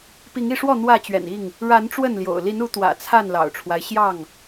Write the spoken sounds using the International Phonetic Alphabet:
p i˨˦ ŋ i˥˨ ʂ w ɔ˥˨ n̪ w ä˥˨ t͡ɕ ɥ ɛ̰˨˩ n i˥˨ ŋ | ɻ a˨˦ n ʈ͡ʂ w ə˥˨ n l j o̰˨˩ ʊ̯ l i˨˦ n u˨˦ t̪ w ä̰˨˩ t͡sʰ a˥˨ n l ɑ̰˨˩ ʊ̯ ʈ͡ʂʰ w a˦ ɪ̯ ɕ j ɑ˥˨ ŋ

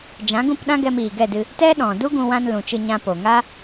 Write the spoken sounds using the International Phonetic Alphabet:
d͡ʒ ã˨˦ ɡ ũ˦˨ p ɗ ã˦ ɡ ɛ˧ m iː˨ ɡ ɛ˦˨ d ɨ˧ | t ɛ˦ ɗ ɔ̃˨ d u˦ ɡ ũ˧ w ã˧ n l ũ˨ t͡ʃ ɨ˧ ɲ ã˧ p o˨ ŋ a˦

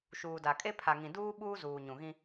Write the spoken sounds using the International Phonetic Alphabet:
ʃ uː˨ d a˨ kʼ e˦ pʰ a˨ ŋ ĩ˨ d uː˦ ɓ uː˦ z uː˨ ɲ ũ˨ ɣ ĩ˦

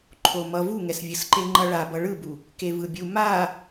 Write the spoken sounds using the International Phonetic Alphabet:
ǃʰ o m ʌ v u ŋ ɛ s vʲ ɯ s ǃ e ŋ͡ǃ ʌ ɭ a b ʌ ɭ ɯ b u | k e v ɯ bʲ u m a

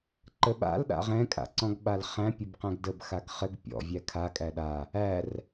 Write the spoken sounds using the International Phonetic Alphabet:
ǃ ə ɓ a̰ l ɗ a̰ ʁ ɛ̃ kʼ a̰ ǀ ɔ̃ ɡ ɓ a l χ æ̃ pʲ ə b q æ̃ ɡ d ə b x a ɡ χ ɘ ɡ pʲ ɔ̰ vʲ æ kʰ a kʼ æ ɗ a | æ r

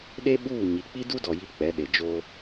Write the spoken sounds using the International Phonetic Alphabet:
ɗ e˦ ɓ uː˦˨ ɲ i˨ k͡p i˦ d u˦ d ɔ˨ j i˦ k͡p ɛ˨˦ ɗ e˨ d͡ʒ o˦

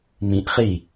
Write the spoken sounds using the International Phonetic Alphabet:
m ĩ ʔ χ i

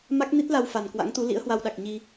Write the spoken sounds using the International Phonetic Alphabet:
m a˦˥ k̚ n i˦˥ t̚ l a˧ w f a˨˩ n k w a̰˧˥ ŋ t̪ u˨˦ l ḭ˧˥ ə̯ h w a˧ w ɗ a˨˩ k̚ ɲ i˧

